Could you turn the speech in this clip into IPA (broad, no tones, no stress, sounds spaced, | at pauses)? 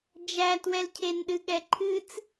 d͡ʒ æ t w ɛ l cʰ e n ɗ ɨ ɠ ɛ ǃʰ ɨ t͡s